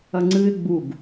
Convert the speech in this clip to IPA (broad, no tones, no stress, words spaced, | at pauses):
ɐŋ͡ǀɨɪ̯ ɡ͡buɡ